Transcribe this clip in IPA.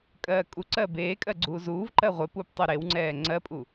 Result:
kʼɜːkʼuǀɜː beːkʼɜ ɡ͡ǀuːzuːvǃɜ ʁʷepup tˤuɾewŋ͡ǀɛː ŋ͡ǀɜpʼu

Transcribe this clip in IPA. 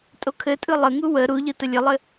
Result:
tʼokʰɘtʼɯ lˠəŋu wə ɾuʎɯ təlʲɘlˠɘ

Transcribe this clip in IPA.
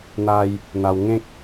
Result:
n̪a˧j | n̪a˧wŋẽ˦k̚

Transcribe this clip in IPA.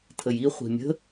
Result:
tʰəji χʷi̤mʲə̤

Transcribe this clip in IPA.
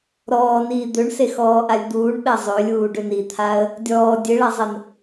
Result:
ɾɔːniː d̪øɳsexɔːʔalʲ d̪uːɳɓɛ zˤølʲuːɖøn it̪ʰaə̯ | dʲɔː dʲeɭazˤɛn

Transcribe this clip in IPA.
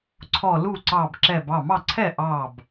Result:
ǀʰɔ˧˩ lu˥˩ǀɑ˧˩bǁɛ˧˩b ɑ˥˩mɑ˥˩ǀʰɛ˥˩ ʔɑ˥˩b

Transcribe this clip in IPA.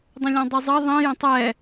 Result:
dˤə̃lʲɔ̃dˤizˤʌ ðˤĩ jə̃tˤɛ

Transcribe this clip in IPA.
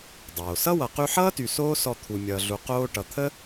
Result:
dˤoː˩sʌ˥wʌ˨ qy˦ħʌː˥ty˨ soː˥ sɔ˦t̪ʰu˨ mʲʌː˨ɮu˨ qoː˦ ʈʌ˨t̪ʰə˥

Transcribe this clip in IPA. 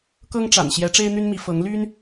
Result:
kɤ˥ŋʈ͡ʂa̰˨˩n ɕjɛ˧˥ʈ͡ʂe˥ɪ̯ n̪y˥nmi˧˥ fɤ˧˥ŋ ly˥n

